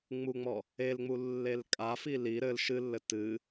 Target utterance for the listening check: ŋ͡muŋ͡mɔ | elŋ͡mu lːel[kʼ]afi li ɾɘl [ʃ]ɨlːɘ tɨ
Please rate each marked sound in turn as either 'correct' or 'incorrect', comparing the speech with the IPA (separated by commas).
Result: correct, correct